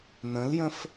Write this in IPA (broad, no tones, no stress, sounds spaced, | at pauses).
n ə̃ l j ə̃ f